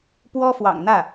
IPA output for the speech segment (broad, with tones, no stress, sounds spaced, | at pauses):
p w ɔ˥ f w ɑ̰˨˩ ŋ n̪ ä˥˩